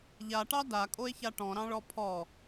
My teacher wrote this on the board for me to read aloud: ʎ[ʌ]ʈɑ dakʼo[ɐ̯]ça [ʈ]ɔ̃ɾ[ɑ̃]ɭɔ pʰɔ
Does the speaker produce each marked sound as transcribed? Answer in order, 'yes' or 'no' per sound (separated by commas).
no, no, yes, yes